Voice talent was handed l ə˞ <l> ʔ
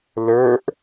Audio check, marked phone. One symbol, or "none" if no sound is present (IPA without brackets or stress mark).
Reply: none